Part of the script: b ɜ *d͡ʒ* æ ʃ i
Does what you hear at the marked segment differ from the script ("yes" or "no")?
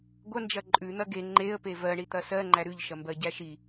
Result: yes